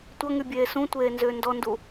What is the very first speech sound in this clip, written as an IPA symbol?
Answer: tʷ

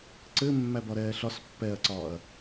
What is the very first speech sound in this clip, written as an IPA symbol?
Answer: ǀ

